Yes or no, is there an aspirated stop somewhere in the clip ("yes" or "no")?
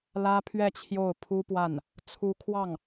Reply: yes